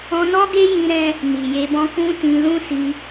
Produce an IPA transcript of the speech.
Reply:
ɔ̃˧ n ɔ˦ ɡ e˦ j ĩ˧ ɾ ɛ̃˧ | n i˨ j e˧ b ɔ̃˦ k ũ˦ t ĩ˧ l ũ˦ s i˧

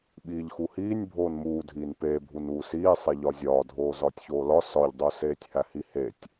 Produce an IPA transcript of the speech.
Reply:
ɓ iː ʎ x u h iː nʲ bʱ oː n m uː dʱ iː n p eː bʱ u n uː s iː sˤ e ʎ ɒ zʲ ɒː dʱ oː z ɒː tʲ ç oː l ɒ s ɒ ʎ dˤ u s eː tʲ h æ h i h e tʲ

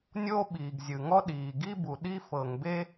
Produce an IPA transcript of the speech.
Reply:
nʲ oː˥ ɓ iː˩ ɡ zʲ ɯ˩ ŋ ɔ˥ ɗ iː˩ ɡ i˥ b u˩ ɗ i˥ f ɤ˩ ŋ b e˥

